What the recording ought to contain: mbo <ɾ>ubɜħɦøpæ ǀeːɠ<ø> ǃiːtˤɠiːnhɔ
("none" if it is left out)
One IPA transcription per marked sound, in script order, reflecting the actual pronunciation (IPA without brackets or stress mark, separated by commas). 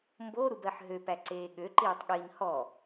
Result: ɾ, ø